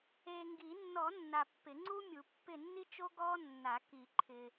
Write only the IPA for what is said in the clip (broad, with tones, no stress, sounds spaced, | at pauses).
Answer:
eː˨ ŋ ɡ i˨˩˦ nː ɔ˨˩˦ nː a˨ pː ɪ˨˩˦ ŋ͡ǀ u˥ mʲ u˨˩˦ pː ɪ˦˨ nː i˥ t͡ʃ o˥ ɡ ɔː˥ nː a˨˩˦ k i˨˩˦ ǃʰ ɪ˨